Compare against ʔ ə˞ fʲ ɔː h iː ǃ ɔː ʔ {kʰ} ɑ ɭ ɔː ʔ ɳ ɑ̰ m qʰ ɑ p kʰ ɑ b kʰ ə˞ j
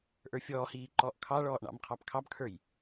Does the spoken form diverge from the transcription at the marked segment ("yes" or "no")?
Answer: no